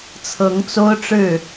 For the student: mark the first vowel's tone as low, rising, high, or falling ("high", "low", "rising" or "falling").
rising